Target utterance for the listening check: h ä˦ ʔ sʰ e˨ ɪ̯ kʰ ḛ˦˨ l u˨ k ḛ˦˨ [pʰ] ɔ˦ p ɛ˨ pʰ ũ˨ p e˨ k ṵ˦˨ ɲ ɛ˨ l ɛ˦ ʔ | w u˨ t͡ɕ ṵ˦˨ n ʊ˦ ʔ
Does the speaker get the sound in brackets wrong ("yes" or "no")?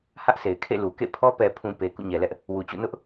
no